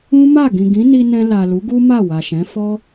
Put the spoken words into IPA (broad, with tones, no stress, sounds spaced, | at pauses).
ũ˦ m a˦˨ ɡ ĩ˨ ɡ ĩ˨˦ n i˧ n ɛ̃˧ l a˨ l u˨˦ ɡ u˦ m a˦˨ w a˨ ʃ ɛ̃˨˦ f ɔ˦